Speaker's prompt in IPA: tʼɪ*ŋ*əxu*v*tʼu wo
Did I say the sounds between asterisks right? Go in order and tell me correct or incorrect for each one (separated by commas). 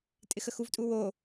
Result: incorrect, correct